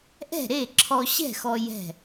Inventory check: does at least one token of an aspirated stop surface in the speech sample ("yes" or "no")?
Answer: yes